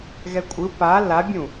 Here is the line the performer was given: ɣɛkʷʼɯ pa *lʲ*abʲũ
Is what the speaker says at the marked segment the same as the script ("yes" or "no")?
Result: no